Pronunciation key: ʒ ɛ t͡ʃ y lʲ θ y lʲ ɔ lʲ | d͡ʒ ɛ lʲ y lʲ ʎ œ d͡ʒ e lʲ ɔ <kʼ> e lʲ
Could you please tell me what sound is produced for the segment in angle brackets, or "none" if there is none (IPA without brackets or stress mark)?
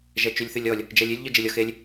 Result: x